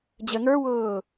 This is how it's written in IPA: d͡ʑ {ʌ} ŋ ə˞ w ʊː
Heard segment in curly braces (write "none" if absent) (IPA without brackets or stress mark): ə